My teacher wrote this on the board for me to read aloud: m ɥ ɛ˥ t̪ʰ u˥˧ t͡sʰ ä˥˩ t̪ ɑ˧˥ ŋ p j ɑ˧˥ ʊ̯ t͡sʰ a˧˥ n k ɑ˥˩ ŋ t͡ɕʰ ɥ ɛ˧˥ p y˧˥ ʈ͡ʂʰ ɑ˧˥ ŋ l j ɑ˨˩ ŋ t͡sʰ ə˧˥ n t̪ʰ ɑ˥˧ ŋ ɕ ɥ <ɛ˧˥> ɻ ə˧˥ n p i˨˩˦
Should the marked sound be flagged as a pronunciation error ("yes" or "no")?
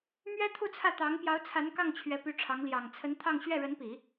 yes